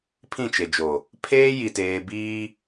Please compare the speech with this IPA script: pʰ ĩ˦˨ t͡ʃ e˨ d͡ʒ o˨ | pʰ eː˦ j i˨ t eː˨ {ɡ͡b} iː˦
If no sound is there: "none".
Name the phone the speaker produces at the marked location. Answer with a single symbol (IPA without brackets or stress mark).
b